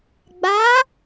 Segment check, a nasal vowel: absent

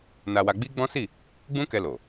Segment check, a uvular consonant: absent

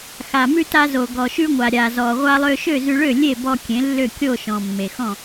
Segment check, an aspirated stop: absent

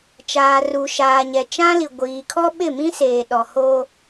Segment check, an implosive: present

